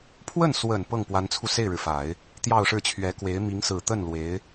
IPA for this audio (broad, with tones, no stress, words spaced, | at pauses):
pʰwə˥˩n swə˨˩n pɤ˥˩ŋpwa˧˥nt͡sʰu˧ se˥˩ɪ̯ɻɻ̩˩fa˨˩˦ɪ̯ | t̪jɑ˥˧ʊ̯ʂɻ̩˥˩t͡ɕʰɥɛ˧˥kwe˧˥ɪ̯ mi˧˥ŋsɹ̩˨˩t̪ə˥˩n lwe˧˥ɪ̯